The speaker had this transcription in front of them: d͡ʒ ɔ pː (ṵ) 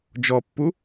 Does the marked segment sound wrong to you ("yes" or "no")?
yes